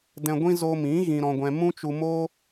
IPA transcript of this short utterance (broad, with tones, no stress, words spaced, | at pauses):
dɛ̃˧ɡʷĩ˦ zo˧mĩ˨˦ ɣĩ˧ɾɔ̃˧ɡʷɛ̃˧ mũ˦t͡ʃu˧moː˦